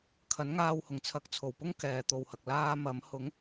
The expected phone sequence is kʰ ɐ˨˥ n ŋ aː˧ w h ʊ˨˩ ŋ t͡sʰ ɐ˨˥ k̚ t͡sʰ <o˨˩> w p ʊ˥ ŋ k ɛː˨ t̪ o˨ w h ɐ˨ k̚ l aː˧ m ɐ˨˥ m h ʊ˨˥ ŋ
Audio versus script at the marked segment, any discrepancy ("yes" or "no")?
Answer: no